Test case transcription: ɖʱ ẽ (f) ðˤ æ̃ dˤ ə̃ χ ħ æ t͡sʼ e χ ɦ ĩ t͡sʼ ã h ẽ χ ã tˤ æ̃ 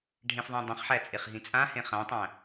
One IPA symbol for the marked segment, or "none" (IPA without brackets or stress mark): f